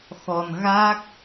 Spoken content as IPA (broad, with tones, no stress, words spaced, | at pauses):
xɔ˨˩nɣa˦˥k̚